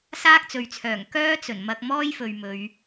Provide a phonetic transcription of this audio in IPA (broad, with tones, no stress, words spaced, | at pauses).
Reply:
saː˥k̚t͡sɵ˨ɥt͡sʰœː˨˩ŋ kœː˥t͡sɵ˨˩n mɐ˧k̚mɔː˥jfɵ˨ɥ mɵ˨˧ɥ